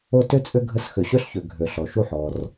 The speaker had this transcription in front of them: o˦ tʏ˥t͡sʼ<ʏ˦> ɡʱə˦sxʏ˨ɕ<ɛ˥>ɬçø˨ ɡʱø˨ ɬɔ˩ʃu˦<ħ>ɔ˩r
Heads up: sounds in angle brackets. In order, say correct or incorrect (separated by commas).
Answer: correct, incorrect, correct